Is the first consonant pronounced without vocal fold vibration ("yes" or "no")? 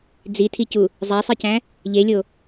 no